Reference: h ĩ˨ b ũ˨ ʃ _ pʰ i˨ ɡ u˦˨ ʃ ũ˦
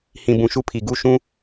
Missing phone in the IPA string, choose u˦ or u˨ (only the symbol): u˦